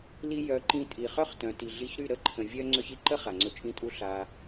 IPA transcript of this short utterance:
l i˧ j œ˨˦ ǃ ĩ˧ tʼ i˨ χ œ˦ χ t œ̃˨ t i˨ ɮ i˧ ç ɾ y˦˨ ɾ ə˦˨ ǃʰ ə̃˨ vʲ œ˦ ŋ͡ǀ œ˧ ç i˨ ǃ ə˦ χ a˨ ŋ͡ǀ ɵ˧ t͡ʃʼ ĩ˦ tʼ u˦ ɬ a˧

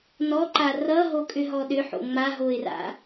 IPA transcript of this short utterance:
n ɔ ǃ a r ʌ ɦ o kʼ ʏ ɦ ɔ ɗ ʏ ħ o̰ ŋ͡m a ɦ o ɪ̯ r a̰

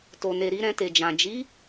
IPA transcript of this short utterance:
t o˨ n e˨ ɾ i˧ ɾ ɛ̃˧ t e˨ d͡ʒ ã˨ d͡ʒ i˨˦

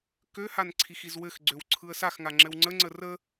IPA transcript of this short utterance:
k ø h a n ǀʰ i x i z w ɘ x ɡ͡ǀ ø w ǀʰ ɯ ə̯ s a x ŋ a ŋ͡ǁ ɘ w ŋ͡ǀ ə ŋ͡ǀ ə r ə

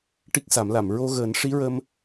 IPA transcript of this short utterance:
ʈ i˦˥ k̚ s a˨˩˦ m l a˨˩˨ m ɹ o˧ ɣ əː˨˩˦ n ʂ i˧˥ ɹ ə˧ m

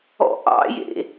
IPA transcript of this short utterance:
ɔ̰ ʔ ɑ̰ j ḛ

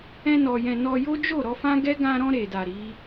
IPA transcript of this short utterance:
ɛ̃˧ n ɔ˨ j ɛ̃˨ n ɔ˧ j o˦ d͡ʒ o˦˨ ɾ ɔ˧ f ã˦ ɡ ɛ˦ ɡ ã˧ ɾ ɔ̃˧ ɾ e˨ d a˨ ɾ i˨˦

